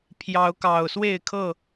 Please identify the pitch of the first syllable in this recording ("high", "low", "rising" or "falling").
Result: rising